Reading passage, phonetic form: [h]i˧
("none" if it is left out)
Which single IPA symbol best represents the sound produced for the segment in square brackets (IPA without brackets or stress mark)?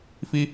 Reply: f